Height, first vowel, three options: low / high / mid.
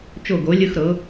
mid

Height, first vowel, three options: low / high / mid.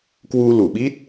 high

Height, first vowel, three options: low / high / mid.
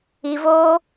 high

